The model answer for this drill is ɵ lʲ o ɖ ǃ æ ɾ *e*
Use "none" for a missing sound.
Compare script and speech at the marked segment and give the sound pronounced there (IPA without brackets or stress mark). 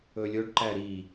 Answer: i